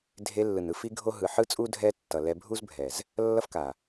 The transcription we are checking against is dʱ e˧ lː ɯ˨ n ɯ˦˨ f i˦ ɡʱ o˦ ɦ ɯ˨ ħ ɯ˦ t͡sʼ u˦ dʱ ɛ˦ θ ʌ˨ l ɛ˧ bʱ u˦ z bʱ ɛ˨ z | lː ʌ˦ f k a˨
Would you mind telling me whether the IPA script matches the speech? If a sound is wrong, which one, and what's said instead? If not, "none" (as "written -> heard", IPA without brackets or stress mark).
θ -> tː